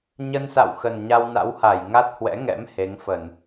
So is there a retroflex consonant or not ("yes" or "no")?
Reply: no